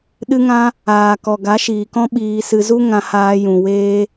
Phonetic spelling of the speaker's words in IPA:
ɗɨ˧ŋã˧ | aː˨kɔ˨ ɡa˨˦ʃiː˨kɔ̃˦ ɓiː˧sɨ˧ zu˦ŋã˧haː˧ jũ˨weː˧

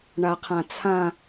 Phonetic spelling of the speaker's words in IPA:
ɳaqʰãt͡sʰã

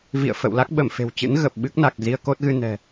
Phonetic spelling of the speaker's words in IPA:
vḭ˧˨ə̯fə̰˧˨wla˦˥k̚ ɓə˧˩mfe̤˨˩wt͡ɕɨ̰˧˥n ɣə˨˩p̚ɓɨ˦˥k̚na˨˩k̚ zi˧ə̯ko˦˥t̚ɣɨ˧ nɛ̤˨˩

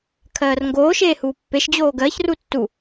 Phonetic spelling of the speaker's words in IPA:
kʰɜːrŋɡoːʃeː huːpːeʃd͡ʑoː ɡɜçru tːu

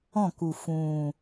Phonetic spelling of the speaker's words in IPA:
ɔ̃˥˩ku˨˩ fũː˨˩

